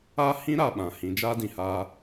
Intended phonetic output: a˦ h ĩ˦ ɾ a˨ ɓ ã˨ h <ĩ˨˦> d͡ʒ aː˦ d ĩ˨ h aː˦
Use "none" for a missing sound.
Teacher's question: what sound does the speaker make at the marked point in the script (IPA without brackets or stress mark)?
ĩ˨˦